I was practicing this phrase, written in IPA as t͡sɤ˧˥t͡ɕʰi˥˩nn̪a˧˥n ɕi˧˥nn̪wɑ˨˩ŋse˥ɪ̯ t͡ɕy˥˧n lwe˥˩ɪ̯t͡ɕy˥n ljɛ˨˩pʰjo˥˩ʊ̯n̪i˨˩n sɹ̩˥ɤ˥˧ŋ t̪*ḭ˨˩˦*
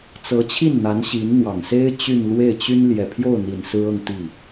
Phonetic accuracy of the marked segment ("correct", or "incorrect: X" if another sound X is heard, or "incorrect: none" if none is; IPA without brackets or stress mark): incorrect: i˥˩